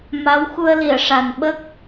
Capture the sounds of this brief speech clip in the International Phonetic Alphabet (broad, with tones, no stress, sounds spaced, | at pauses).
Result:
m a˧˥ w x u˧ ə̯ l i˨˩˨ ə̯ ʂ a˨˩ n ɓ ə˦˥ k̚